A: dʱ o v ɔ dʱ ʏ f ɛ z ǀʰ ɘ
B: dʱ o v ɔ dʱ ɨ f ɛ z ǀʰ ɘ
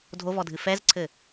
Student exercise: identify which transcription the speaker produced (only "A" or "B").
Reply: B